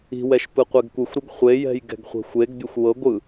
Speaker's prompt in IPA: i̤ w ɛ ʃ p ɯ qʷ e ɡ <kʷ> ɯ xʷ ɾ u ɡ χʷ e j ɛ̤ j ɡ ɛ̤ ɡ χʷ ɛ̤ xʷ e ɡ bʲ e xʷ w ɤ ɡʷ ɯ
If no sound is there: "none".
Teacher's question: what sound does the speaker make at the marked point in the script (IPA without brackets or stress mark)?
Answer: kʷ